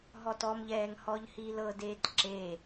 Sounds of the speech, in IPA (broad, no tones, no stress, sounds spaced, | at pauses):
ɦ ɔ t ɔ m ʎ ɛː ŋ h ɔ ʎ h i l ɤ d eː t ǁ e